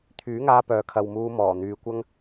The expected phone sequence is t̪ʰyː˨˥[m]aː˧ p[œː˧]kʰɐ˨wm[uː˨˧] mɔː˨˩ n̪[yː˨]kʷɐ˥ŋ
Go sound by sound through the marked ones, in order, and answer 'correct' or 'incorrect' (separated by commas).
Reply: incorrect, incorrect, incorrect, correct